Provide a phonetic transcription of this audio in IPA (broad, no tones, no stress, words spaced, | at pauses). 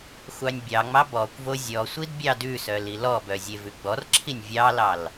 xʷɑnʲbʲɑŋ͡mɑ bɔkʷvo zʲɔsʷid bʲɑdʉsœ lilɔbœ zʲevʉɡ͡bɔrǁʰinʲ vʲɑlɑl